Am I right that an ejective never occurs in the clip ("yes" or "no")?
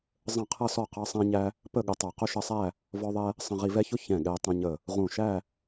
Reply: yes